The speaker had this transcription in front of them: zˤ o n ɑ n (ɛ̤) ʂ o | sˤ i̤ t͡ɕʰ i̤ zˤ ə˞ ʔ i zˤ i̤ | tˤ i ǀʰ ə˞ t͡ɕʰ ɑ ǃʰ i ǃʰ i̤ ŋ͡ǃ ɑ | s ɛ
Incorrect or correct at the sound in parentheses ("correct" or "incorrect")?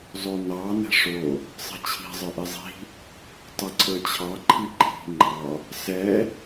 correct